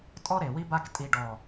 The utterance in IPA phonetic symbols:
tʼɔ˦ɾe˨wi˦ba˦k tʼi˨ɖɔ˨

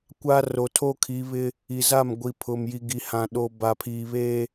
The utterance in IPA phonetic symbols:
kʷa˦ ro˨tʰoː˦kʰi˨˦βɪ˦ | i˨za˦˨mɡʷi˨ pʰʊ˨mji˨ɡi˨ hã˨ɗo˨ ba˨pʰiː˨ βe˦

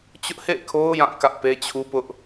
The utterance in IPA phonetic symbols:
t͡ɕʊ˦ʔhḛ˦˨ɪ̯kʰo˦ʊ̯ jã˦˨ kä˦ʔpe˦ t͡ɕʰu˦pʊ˦ʔ

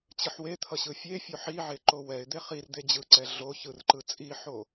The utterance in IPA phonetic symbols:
t͡ɕɯħwet̪ʰʌ ɕɯfʲefʲo ħiʕe ǃowɛɪ̯d̪e χir d̪ed͡ʑɯǀɛ ɮo çɯrǃɯ t͡sʼiħo

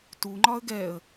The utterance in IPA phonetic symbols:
tuŋ͡ǃɒə̯ ɡɛə̯

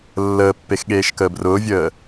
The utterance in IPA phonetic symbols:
lːəːpːex ɠeːʃkəːbrʊːvʲəː

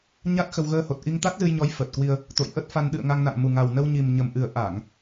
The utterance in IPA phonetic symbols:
ɲa˦˥t̚xə˧w ɣəː˧ho˨˩t̚ʔi˧ŋ t̪a˦˥t̚zɨ˧jɲɔ˨˦j fəː˨˩t̚kwi˧ə̯ | t̪o̰˧˨jʔə˦˥t̚fa˧n ɗɨ̰˧˨ə̯ ŋa˧ŋna̰˧˨ŋ mu˨˩ŋa˨˩w nə˧wɲi˨˩mɲə˨˩m ʔɨ˨˩ə̯ʔa˧˩˨ŋ

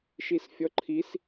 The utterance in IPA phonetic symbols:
ʃisfʲɔǃʰis

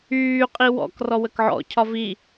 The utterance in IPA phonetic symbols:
yː qʼiwɔ̰k rɔwəkʕɔ̰ cʰɒvi

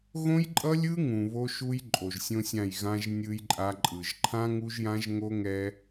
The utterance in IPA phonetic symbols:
ɣõ˦jǃʼʌ˦lʲɯ˦ ŋũ˨βo˦ʃu˦j ǃʼo˨ʒsʲõ˦sʲã˦˨j ɣã˦ʒ nʲɯ˦jǃʼa˦ ǃʼɯ˨ʒ ǃʰã˦ŋu˦ʒjã˦ʒ ŋo˦ŋɛ˦

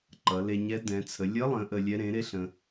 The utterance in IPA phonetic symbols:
ǃʌ˩˧le˧ɲɛ˧˥ dɛ̃˩˧t͡sʰə˩˧ lʲə˧˥lˠə̃˩˧ ʔə˧lʲɛ˧˥ ɾẽ˩˥ɾe˥ɬə̃˧

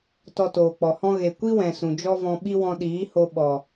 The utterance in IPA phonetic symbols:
tɔ˧toː˨k͡pɔ˨hɔ̃˦ ɣe˨kʷi˦wɛ̃˨ sũ˨d͡ʒɔ˦vɔ̃˧ ɓi˦wɔ̃˧ ɗiː˨˦ho˧ ɓɔ˨

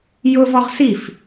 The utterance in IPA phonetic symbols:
jʊvɔʁ sif

